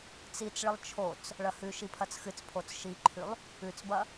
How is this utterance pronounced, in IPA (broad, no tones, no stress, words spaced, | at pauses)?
t͡sit͡sɭɨlˠ t͡ʃʰot͡s | ɭɐhʉʃi pʰɐt͡sxɨt͡spʰot͡s ʃiǃʰʉlˠ | ʉt͡sbɐ